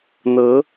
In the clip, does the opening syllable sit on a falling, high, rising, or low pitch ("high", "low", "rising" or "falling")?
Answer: rising